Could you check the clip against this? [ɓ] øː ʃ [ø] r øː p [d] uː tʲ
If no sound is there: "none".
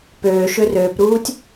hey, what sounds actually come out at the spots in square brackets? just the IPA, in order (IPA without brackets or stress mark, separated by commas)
p, ø, ɾ